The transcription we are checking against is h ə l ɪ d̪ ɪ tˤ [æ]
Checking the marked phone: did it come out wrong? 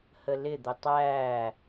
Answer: no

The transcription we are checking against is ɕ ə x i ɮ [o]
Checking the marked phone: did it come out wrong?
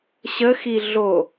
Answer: no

